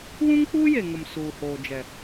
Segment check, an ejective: absent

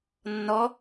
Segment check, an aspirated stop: absent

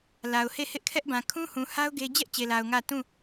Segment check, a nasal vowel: present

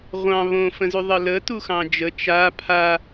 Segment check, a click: absent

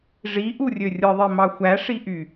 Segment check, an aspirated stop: absent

